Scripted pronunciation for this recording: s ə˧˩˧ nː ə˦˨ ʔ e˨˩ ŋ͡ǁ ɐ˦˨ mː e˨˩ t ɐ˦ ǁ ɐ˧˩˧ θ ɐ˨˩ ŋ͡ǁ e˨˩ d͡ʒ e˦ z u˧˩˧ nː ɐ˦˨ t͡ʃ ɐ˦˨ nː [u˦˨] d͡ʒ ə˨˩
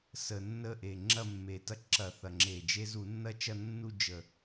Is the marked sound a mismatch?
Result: no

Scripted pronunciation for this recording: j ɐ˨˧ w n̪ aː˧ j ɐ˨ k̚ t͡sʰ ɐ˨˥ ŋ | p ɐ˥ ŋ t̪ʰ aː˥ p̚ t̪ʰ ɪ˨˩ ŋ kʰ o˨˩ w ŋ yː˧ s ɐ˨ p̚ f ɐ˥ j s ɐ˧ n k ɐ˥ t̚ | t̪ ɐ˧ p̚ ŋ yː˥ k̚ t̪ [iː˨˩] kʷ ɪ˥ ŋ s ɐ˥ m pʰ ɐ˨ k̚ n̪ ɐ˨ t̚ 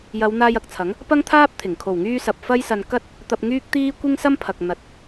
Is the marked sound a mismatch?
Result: yes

